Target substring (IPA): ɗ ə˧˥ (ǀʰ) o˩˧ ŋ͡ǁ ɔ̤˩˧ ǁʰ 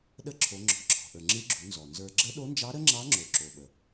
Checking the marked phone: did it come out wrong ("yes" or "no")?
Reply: yes